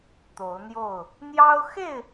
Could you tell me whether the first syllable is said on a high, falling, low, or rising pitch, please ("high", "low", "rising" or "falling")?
rising